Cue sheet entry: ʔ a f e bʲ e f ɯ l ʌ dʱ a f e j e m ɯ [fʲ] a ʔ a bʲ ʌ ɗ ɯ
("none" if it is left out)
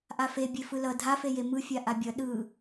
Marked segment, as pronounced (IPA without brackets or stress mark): fʲ